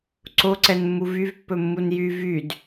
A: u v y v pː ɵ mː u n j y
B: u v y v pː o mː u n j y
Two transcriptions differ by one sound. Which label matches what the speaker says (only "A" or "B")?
A